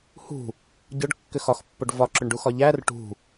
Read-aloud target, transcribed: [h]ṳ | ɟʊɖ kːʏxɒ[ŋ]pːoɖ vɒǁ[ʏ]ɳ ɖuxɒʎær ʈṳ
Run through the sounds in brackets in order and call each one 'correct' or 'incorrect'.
correct, incorrect, correct

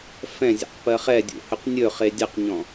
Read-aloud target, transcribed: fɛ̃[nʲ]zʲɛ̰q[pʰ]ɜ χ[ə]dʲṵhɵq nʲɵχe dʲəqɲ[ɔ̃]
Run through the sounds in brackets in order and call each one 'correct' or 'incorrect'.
incorrect, incorrect, incorrect, correct

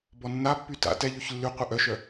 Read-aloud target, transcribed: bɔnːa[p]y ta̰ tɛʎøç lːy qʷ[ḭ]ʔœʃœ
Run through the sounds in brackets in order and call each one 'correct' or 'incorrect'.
incorrect, incorrect

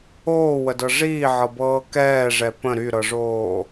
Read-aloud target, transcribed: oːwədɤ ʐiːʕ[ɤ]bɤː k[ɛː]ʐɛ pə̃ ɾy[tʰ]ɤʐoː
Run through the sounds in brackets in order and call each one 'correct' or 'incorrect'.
correct, correct, incorrect

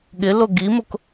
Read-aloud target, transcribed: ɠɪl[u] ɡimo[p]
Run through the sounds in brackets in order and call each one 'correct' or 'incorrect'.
incorrect, incorrect

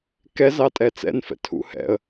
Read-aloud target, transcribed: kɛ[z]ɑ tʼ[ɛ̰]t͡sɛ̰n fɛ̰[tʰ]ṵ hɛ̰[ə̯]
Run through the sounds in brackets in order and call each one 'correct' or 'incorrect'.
correct, incorrect, correct, correct

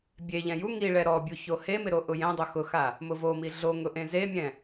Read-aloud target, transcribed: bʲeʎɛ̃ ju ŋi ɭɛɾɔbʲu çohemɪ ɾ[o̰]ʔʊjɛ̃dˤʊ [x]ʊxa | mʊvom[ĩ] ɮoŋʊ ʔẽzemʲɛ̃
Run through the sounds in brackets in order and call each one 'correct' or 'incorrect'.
incorrect, correct, incorrect

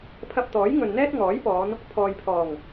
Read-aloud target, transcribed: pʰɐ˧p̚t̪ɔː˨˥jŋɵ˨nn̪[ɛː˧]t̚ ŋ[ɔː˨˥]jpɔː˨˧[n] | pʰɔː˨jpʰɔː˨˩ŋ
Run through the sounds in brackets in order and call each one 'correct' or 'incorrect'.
incorrect, correct, correct

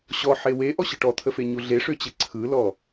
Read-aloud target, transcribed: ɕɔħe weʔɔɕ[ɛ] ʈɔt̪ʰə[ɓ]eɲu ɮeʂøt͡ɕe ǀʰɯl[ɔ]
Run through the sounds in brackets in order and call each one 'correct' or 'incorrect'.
incorrect, incorrect, correct

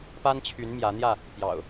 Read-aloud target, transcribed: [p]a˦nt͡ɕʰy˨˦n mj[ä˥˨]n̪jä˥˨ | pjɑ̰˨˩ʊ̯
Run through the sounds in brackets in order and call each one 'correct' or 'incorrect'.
correct, incorrect

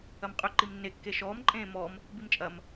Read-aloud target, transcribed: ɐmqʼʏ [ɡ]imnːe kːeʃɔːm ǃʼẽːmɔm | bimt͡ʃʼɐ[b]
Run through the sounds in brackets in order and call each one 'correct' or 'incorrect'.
incorrect, incorrect

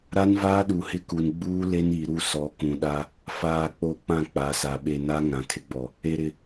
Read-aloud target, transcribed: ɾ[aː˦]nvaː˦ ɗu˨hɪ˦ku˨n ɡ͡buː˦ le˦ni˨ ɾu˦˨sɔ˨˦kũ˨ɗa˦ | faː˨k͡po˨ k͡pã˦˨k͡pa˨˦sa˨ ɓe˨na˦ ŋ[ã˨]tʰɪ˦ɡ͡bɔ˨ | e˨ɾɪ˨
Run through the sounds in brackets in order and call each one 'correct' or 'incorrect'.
incorrect, correct

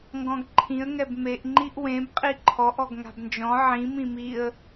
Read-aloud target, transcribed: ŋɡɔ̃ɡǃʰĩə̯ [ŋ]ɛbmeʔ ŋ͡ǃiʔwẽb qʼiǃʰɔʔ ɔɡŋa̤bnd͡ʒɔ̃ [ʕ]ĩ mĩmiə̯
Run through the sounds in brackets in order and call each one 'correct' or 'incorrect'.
correct, correct

